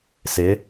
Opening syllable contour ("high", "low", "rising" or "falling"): rising